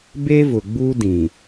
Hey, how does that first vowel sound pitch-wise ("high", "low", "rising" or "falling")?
high